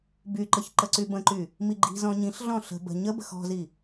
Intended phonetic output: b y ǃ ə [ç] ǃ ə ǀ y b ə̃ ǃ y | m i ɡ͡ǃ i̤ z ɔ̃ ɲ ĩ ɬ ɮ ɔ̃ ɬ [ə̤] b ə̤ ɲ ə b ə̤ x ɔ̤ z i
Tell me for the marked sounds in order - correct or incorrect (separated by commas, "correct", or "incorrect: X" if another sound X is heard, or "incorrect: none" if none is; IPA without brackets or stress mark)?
correct, correct